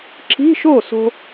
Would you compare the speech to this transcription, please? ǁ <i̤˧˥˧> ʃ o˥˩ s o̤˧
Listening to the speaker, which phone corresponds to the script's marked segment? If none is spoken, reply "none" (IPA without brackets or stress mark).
i̤˧˥˧